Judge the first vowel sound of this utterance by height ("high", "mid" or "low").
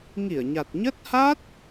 high